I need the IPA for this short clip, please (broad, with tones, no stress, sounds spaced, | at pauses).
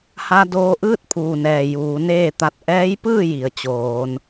h a˧ d oː˧ ʔ ɯː˥˨ t̚ pʰ uː˩ n ɛː˩ j uː˩˧ n eː˥˨ t̪ a˧˩ t̚ ʔ ɛː˧˥ j p ɯː˥˨ j i˩ ə̯ t͡ɕ oː˩˧ n